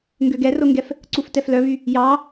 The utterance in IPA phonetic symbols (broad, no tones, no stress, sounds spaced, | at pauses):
ŋ ɡ ø ɡ ɛ r o ŋ ɡ ɛ f | ǀ u f t ɛ f l œ β y | j ɑ